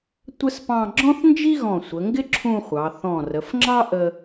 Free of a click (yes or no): no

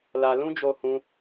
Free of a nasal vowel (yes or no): no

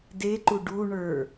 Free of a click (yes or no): no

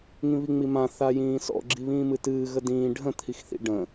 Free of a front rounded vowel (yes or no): yes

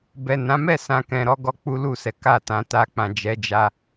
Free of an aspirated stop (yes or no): yes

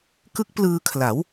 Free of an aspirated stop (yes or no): no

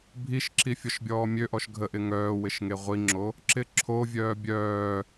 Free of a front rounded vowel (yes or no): no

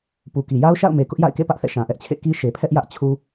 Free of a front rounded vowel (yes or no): yes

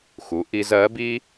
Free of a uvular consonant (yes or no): yes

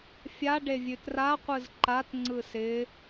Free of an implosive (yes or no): yes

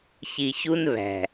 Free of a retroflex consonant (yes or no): yes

